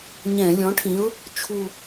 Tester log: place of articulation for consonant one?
palatal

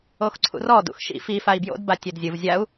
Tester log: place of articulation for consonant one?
velar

